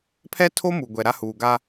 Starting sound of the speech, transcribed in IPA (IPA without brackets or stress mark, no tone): pʰ